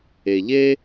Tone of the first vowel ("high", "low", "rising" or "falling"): low